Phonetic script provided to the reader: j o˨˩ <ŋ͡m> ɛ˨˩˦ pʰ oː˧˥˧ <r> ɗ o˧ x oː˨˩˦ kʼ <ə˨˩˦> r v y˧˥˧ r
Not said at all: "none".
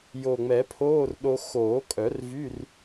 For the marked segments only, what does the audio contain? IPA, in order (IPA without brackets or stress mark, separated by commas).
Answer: ŋ͡m, r, œ˨˩˦